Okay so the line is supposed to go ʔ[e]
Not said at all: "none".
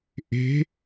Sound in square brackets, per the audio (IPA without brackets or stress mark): e̤